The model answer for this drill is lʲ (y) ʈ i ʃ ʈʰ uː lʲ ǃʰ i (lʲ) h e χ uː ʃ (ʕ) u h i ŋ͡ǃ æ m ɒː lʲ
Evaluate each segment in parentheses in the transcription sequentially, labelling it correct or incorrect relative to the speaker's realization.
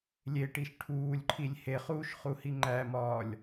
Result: incorrect, correct, incorrect

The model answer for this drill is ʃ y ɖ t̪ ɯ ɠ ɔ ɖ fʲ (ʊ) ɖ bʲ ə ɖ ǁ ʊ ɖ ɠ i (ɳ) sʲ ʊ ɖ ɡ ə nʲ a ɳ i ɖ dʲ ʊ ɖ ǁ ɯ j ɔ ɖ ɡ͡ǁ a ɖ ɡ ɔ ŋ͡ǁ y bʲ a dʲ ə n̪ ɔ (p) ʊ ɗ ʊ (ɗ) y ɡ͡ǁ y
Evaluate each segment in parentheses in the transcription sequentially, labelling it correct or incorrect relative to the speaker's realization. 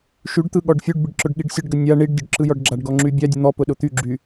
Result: incorrect, incorrect, correct, incorrect

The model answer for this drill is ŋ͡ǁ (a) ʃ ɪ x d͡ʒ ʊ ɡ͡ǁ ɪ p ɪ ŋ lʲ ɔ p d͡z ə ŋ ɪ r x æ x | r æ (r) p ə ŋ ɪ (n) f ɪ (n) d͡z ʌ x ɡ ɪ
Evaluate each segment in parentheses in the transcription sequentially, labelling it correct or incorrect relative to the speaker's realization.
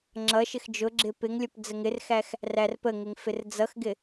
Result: incorrect, correct, incorrect, incorrect

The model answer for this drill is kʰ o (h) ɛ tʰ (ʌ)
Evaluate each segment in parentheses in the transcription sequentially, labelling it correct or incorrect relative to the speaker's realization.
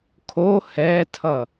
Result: correct, correct

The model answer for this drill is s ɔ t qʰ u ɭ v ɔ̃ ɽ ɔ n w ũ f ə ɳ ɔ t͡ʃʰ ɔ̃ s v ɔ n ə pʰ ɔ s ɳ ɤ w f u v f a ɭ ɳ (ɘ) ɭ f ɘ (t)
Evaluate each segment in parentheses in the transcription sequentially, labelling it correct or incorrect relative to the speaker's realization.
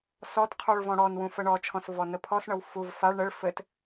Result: correct, correct

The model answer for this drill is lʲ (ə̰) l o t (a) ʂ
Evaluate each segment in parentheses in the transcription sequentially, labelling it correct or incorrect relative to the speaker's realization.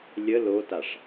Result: incorrect, correct

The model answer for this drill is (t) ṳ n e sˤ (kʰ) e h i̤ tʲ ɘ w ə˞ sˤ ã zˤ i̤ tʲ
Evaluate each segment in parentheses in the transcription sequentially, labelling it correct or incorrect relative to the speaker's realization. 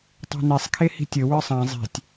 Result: incorrect, correct

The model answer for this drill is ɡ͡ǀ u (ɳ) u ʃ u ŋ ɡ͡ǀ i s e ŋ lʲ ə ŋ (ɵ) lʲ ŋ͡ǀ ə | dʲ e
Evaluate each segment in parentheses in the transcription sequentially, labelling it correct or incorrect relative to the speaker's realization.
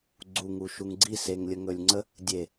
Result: incorrect, correct

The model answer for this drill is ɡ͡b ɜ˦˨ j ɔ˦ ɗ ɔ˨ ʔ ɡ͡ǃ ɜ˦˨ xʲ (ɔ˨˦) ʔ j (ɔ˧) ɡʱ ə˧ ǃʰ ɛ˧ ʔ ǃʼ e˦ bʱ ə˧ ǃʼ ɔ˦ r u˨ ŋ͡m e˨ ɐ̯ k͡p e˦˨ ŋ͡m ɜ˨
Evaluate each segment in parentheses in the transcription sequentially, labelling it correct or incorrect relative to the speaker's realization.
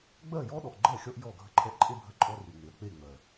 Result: incorrect, incorrect

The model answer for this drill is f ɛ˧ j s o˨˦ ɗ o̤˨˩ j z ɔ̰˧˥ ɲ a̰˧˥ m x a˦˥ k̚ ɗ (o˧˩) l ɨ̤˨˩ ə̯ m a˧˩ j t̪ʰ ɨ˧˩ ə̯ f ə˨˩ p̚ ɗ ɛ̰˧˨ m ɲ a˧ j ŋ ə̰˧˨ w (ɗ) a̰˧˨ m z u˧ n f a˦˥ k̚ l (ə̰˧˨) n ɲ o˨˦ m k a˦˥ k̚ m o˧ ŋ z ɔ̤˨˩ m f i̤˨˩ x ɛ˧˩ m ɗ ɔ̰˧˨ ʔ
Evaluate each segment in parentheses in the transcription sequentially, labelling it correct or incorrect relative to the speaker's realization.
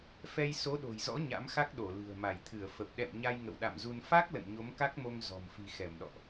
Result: correct, correct, correct

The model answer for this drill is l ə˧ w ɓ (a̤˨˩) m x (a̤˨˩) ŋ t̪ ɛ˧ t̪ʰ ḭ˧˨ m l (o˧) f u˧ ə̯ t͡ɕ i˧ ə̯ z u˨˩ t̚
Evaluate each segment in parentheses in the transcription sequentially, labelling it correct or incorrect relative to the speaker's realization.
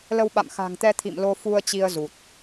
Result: incorrect, correct, correct

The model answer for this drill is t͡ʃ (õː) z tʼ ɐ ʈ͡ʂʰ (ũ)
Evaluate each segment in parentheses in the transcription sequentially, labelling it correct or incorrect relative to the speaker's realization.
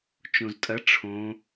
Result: incorrect, incorrect

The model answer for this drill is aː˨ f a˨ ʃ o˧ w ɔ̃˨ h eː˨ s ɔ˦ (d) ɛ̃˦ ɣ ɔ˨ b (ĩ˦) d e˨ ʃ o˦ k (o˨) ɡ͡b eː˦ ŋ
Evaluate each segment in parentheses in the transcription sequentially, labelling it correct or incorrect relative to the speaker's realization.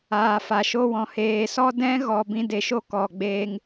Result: correct, incorrect, incorrect

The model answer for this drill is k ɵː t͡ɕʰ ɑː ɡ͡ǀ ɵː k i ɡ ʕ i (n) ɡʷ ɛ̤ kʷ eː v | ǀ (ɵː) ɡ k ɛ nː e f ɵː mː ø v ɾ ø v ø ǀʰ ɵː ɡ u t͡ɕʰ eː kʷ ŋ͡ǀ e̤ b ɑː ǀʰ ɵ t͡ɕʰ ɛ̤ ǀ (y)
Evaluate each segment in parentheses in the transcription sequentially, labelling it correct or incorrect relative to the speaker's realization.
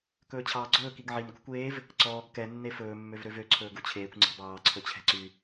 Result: correct, incorrect, correct

